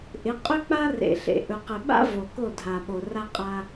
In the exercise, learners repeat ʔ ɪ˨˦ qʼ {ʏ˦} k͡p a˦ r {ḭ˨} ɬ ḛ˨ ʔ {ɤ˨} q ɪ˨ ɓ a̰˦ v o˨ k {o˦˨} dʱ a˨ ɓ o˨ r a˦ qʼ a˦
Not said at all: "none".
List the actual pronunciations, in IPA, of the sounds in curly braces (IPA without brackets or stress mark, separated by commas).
ʏ˦, ḛ˨, ɵ˨, o˦˨